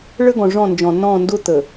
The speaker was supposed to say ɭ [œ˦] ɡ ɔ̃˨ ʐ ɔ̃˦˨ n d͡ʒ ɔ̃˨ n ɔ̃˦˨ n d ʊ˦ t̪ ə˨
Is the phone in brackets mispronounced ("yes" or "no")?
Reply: yes